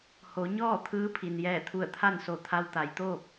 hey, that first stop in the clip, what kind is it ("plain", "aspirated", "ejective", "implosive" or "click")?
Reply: aspirated